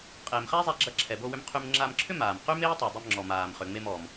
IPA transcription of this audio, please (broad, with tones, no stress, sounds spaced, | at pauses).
qʼ eː˩ m χ æ˥ zˤ æ˧ ɡ͡ǁ ɐ˧ ǁʰ ɛ˩ b o˧ w ʏ˧ m qʰ y˧ m ŋ͡ǁ a˧ m ǁʰ ʏ˥ m aː˩ m q y˥ m eː˥ tˤ y˩ dˤ ɛ˧ m ŋ͡ǁ ɔ˩ m aː˩ m χ ʏ˩ ŋ͡m e˧ m ɔ˩ m